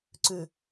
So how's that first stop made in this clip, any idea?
click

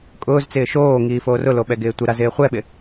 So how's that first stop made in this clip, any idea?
ejective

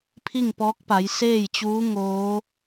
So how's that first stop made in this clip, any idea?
aspirated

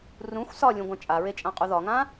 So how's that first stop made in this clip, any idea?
plain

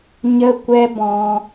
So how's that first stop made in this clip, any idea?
plain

